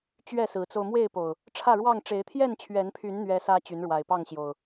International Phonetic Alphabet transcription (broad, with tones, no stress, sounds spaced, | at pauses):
t͡ɕ ɥ ɛ˥˨ s ɹ̩˨˦ t͡s o˧ ʊ̯ m w e˥˨ ɪ̯ p o˨˩ ʊ̯ | ʈ͡ʂʰ ä˥˨ ɻ w ɑ˥˨ ŋ ʈ͡ʂ e˨˦ ɪ̯ t̪ʰ j ɛ˥˨ n t͡ɕʰ ɥ ɛ˨˦ n pʰ y˨˦ n n̪ ɥ ɛ˦ s ä˦ t͡ɕ y˨˦ n ɻ w a˨˩ ɪ̯ p ɑ˥˨ ŋ ɕ j o˨˩ ʊ̯